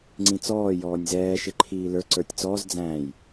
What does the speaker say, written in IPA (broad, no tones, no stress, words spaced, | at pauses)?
ŋ͡ǀĩt͡sɔː jɔːnʲzɛː ʃɪǃʰiːlə˞ ǀə˞tʲt͡sɔːz d͡zæ̃j